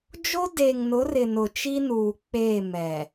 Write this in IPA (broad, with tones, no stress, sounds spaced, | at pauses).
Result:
d͡ʒ o˦ d eː˨ ŋ n ʊ˨˦ r ɪ˨ n ʊ˨ t͡ʃ i˦ n uː˨ k͡p e˦˨ m ɛ˨